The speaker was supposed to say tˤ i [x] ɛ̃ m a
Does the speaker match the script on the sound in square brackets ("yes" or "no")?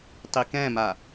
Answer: no